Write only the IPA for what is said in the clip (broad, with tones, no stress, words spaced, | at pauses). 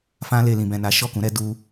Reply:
fã˧ le˨lĩ˨bɛ̃˨ na˨˦ ʃɔ˦˨kũ˨˦ɾɛ˦ du˦